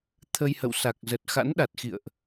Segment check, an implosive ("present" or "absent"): present